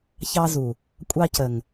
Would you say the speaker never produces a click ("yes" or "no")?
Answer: yes